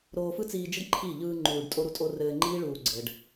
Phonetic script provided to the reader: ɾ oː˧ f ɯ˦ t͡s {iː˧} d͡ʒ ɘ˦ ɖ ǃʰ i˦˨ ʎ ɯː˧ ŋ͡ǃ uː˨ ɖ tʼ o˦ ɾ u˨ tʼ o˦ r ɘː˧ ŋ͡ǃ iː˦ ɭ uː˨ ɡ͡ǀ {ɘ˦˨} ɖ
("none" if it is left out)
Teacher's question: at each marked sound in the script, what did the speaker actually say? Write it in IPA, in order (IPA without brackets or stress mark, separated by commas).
iː˧, ɘ˨